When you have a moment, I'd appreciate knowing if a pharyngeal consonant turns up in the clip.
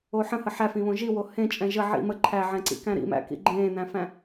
yes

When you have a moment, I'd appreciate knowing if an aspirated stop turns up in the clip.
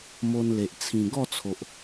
yes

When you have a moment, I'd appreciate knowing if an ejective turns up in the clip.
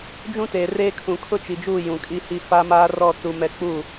yes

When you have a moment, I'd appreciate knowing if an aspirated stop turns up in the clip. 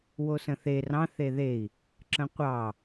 no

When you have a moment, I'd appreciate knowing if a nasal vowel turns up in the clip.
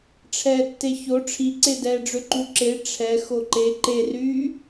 no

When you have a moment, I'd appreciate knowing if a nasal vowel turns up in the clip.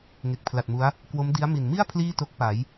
no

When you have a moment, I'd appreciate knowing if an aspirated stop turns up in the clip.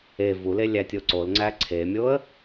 yes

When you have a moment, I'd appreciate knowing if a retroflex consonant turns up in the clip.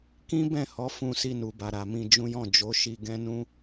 no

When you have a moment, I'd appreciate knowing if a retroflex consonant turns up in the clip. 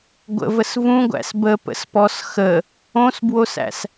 no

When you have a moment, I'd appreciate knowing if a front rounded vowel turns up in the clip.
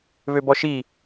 yes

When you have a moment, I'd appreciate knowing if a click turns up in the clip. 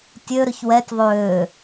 no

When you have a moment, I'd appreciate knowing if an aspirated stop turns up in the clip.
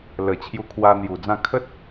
yes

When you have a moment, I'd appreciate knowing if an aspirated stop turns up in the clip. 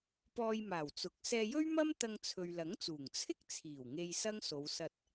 yes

